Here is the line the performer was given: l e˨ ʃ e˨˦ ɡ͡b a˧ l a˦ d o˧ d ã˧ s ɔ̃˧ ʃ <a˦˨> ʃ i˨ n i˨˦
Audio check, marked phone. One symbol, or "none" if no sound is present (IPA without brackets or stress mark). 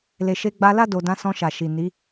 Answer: a˨